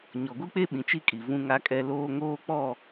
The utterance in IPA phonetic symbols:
ɲ ɔ˨ ɡʷ i˦ k͡p e˦ ɓ ĩ˨ t͡ʃ i˦ kʼ i˨ v ũ˦ ŋ a˦ kʼ ɛ˦ l oː˦ ŋ oː˦ k͡p ɔ˦˨

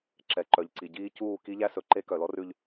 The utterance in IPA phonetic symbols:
ǁ ɛ˨ ǃ œ˨ ʎ ǀ i˨ ɟ iː˦ c uː˦˨ k i˦ ʎ æ˦ s ɵ˨ ǃ e˦ k œ˨ l ɔ˦ r ʉ˨ ʎ

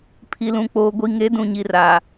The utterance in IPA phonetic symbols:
pʰ i˨ l ũ˨ k͡p oː˨ ɡʷ i˨ ŋ e˨˦ d ũ˨ ɲ i˨ r aː˨

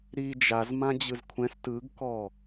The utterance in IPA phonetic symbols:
ɾ i d͡ʒ a z m ã d͡ʑ ɯ z kʷʰ ɛ̃ s t ɯ ɡ k ɔ

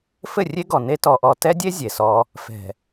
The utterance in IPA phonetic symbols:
f ɘ˦˨ rʲ e˦ ɡ ɔ˨ n e˦ t ɔ˨ ʔ ɔ˨ t ɛ˦ dʲ e˦ zʲ e˨ s ɔ˦ | f ɛ̤˨

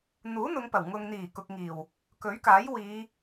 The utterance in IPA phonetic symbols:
n̪ uː˨˥ n̪ ʊ˨˧ ŋ p ɐ˨˩ w ŋ ʊ˨ ŋ n̪ iː˨˩ k ʊ˨ k̚ ŋ iː˨˩ w | k ɵ˨˥ ɥ k aː˨˥ j w iː˨˧

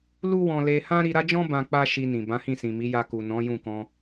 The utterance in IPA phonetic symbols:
l u˦ w ɔ̃˧ l e˧ h ã˦ ɾ i˧ ɾ a˦ d͡ʒ ɔ̃˦ b ã˧ k͡p a˦ ʃ i˧ n ĩ˨ b ã˨˦ h ĩ˦˨ s ĩ˨ m i˨˦ j a˧ k u˨ n ɔ̃˨˦ j ũ˦˨ k ɔ̃˧

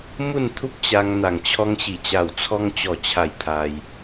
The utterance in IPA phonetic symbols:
m u˥˧ n t̪ʰ u˦ p̚ t͡ɕ a˧ ŋ n̪ a˨˩ ŋ t͡ɕʰ ɔ˧ ŋ ɕ i˨˩ t͡ɕ a˨˩ w t͡sʰ ɔ˧ ŋ t͡ɕ ɔ˨˩ t͡ɕʰ a˨˩ j t̪ʰ a˧ j

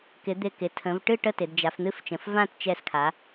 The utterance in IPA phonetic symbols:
k ɪ˩˧ d̪ ɪ˧˩ k ɪ˩˧ tʰ ə̃˩˧ v ʈ ɨ˥˨ ʈ ə˥˨ t ɪ˩˧ d d͡ʒ a˩˧ f n̪ ɨ˥˨ f t͡ʃ ə̃˩˧ f v ã˥˨ t t͡ʃ ɛ˧˩ s kʰ a˩˧

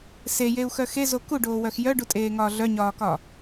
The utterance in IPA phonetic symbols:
s e j e u̯ x œ x e z o k u ɖ oː w œ x j œ ɖ u tʼ eː ŋ ɒː ɮ œ ɲ ɒː k ɒ

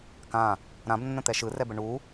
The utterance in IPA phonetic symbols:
k ã | ɾ ã b nː ə̃ t̪ ɛ ʃ ɯ r ɛ b ə ɳ u

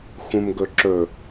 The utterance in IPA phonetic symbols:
x ũ m ɡ ɵ ǁ ɵ

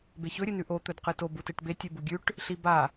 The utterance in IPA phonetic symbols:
b e ç ɵ ɾʲ ɨ n ʉ ʔ o t̪ ɵ d q ɨ t o b u t e ʈ b e tʲ ʉ b u ɡʲ ʉ ʈ | ɬ i b a

